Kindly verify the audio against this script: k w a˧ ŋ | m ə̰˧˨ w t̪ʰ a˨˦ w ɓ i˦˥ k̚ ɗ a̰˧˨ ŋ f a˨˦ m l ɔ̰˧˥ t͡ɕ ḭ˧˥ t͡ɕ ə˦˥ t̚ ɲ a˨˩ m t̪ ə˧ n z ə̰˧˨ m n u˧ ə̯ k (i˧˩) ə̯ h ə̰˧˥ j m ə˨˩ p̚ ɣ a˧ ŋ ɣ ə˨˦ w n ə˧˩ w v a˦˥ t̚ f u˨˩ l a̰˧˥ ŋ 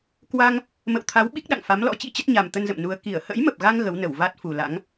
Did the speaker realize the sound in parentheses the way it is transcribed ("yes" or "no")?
yes